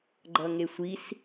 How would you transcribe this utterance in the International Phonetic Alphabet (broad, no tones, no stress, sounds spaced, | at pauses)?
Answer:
ɡ͡ǃ ʌ ŋ e sʷ i s